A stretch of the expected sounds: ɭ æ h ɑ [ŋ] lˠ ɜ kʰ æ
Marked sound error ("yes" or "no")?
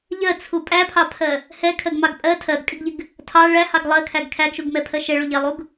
yes